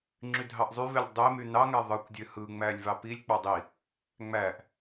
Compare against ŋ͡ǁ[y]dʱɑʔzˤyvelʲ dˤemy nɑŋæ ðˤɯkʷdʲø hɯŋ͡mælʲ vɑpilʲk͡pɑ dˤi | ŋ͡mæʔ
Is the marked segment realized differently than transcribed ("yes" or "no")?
no